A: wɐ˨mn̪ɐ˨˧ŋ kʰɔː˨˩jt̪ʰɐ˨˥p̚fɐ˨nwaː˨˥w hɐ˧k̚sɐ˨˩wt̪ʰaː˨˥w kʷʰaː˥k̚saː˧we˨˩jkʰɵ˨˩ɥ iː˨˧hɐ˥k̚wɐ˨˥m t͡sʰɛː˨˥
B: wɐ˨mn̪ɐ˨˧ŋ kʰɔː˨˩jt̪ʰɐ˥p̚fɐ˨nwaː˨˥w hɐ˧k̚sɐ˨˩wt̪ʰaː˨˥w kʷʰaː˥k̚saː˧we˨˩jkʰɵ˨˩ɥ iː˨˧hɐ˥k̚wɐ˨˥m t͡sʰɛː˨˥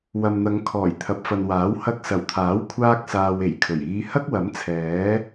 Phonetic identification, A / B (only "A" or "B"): A